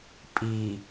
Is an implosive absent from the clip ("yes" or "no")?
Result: yes